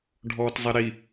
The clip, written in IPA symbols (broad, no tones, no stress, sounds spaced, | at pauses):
ɖʱ ɔː t zˤ ɛ ɾ i